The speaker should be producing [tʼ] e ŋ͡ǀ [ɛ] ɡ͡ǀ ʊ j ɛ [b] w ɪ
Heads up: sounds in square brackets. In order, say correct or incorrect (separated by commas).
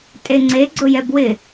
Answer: correct, incorrect, correct